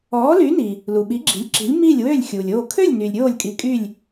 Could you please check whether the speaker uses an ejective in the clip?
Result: yes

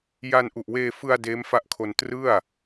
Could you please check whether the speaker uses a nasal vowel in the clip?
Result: no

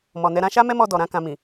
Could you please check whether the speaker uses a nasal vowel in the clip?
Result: yes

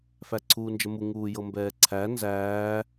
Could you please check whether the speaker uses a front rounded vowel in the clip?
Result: no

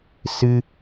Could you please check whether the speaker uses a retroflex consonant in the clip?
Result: no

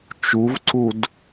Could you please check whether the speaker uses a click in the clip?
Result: yes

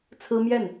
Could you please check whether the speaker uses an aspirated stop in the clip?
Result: yes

